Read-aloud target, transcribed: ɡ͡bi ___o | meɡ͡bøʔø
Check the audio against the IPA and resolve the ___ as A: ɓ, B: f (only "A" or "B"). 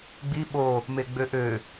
A